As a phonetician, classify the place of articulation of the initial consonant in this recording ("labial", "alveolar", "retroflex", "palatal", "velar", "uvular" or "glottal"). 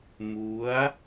labial